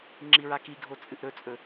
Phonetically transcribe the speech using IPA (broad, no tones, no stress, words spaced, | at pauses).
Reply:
ŋ͡ǁiɹakiɡʱo t͡sʼɨʔɾɵt͡sʼɵ